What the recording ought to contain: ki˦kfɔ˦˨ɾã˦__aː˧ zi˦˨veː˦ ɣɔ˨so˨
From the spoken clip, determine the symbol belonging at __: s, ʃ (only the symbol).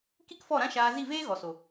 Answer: ʃ